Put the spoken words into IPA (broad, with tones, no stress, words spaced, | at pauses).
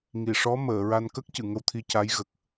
ŋi˨˩˨ʂɔ˧˥məː˨˩˨ɹa˧n kə˦˥k̚cɨ˨˩˨ ŋə˧wt̪ʰi˧ca˧˥j ɣə˨˩k̚